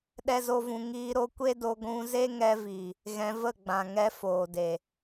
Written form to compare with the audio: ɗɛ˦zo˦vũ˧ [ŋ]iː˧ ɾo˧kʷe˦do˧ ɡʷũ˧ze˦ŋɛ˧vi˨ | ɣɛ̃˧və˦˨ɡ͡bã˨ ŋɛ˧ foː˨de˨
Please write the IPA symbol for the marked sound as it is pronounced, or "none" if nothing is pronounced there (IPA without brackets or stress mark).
ŋ